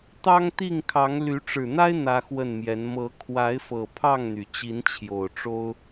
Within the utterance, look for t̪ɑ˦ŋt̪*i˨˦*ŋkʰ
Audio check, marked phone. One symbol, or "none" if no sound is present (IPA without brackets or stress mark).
i˥˨